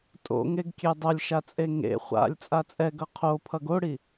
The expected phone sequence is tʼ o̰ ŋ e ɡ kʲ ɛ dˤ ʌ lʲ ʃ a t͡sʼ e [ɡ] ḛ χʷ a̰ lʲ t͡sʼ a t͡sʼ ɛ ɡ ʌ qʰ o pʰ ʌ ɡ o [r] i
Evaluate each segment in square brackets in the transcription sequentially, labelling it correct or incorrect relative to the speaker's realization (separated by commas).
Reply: incorrect, incorrect